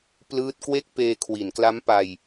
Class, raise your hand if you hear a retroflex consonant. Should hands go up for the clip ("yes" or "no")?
no